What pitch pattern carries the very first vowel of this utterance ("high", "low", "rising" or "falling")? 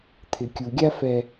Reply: low